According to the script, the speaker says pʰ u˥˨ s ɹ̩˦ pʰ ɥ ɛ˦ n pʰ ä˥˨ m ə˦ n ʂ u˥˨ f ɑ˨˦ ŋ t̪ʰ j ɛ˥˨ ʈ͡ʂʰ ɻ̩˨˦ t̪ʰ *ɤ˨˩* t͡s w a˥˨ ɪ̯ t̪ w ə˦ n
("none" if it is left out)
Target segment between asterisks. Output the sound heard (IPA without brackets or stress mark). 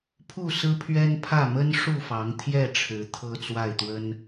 ɤ˦